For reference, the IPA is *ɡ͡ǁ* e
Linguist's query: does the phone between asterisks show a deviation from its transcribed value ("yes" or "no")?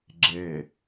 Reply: no